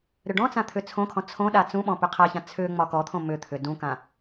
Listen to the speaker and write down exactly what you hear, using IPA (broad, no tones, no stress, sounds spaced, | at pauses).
ɾ ʏ ɖ ɔ̃ t͡s ã t̪ʰ ʏ t͡sʰ õ kʰ ɔ̃ t͡sʰ õ ɗ a t͡s ũ ɓ ɔ̃ p ʏ qʰ a ç ã t͡sʰ ʏ ŋ͡m ɒ k ɔ t̪ʰ õ m ʏ t̪ʰ ʏ d ũ k ã